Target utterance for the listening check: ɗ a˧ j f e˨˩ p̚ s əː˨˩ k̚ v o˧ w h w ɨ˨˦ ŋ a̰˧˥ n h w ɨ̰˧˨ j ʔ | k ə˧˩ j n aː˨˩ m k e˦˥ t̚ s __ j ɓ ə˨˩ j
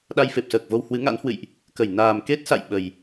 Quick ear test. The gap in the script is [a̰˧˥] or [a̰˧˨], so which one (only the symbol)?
a̰˧˨